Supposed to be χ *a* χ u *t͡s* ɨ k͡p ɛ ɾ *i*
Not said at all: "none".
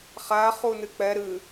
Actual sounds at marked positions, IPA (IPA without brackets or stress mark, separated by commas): a, n, ɨ